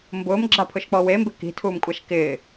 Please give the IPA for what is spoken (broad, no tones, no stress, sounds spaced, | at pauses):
m b ʊː m ɡ͡ǁ a pʰ ʊ ʃ k͡p ɔ w e m b ɪ k i̤ tʰ uː m kʷʼ a ʃ k ɪː